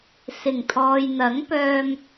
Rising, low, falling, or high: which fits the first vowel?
low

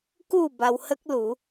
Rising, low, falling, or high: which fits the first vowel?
falling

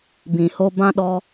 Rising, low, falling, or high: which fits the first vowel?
low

